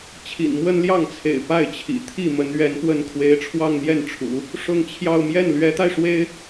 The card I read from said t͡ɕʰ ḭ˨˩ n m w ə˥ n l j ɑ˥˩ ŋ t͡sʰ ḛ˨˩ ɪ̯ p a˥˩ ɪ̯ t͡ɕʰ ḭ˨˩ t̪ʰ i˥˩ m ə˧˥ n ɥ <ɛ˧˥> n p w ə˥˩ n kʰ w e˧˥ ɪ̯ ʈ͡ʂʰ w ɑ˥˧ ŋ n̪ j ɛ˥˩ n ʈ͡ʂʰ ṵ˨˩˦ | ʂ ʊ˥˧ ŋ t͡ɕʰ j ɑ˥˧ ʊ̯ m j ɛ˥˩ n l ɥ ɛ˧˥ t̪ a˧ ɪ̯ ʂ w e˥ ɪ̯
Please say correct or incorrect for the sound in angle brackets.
correct